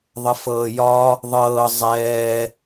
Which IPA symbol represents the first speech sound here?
ðˤ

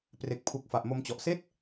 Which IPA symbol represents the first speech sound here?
p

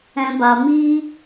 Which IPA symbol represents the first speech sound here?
ɛ̃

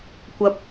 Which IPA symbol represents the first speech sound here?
kʷ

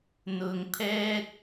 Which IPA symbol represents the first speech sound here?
n̪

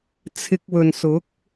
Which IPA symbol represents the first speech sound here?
t͡sʰ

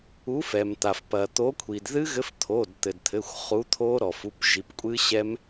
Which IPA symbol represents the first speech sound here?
u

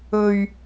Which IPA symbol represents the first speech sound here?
ɵ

